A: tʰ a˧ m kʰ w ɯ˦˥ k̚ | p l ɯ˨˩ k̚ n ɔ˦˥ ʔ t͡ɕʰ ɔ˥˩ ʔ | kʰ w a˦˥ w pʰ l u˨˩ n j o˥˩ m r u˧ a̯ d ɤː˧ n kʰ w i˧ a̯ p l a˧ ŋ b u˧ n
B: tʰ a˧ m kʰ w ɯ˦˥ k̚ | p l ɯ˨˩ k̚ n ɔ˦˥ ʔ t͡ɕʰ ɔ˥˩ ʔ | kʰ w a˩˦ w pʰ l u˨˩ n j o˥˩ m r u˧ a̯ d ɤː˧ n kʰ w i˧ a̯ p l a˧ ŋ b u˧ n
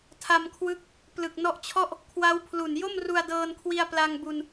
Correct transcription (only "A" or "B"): A